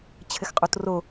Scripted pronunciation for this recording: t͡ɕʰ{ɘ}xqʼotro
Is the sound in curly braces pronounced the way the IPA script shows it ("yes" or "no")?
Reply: yes